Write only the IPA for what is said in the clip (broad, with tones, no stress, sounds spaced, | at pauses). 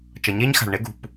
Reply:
t͡ʃ ʌ˩ ɲ eː˥ ɲ x a̤˩ ɭ ɳ e˥ ɡ ṳ˩ p